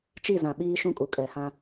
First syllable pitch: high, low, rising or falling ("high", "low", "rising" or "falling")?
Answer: falling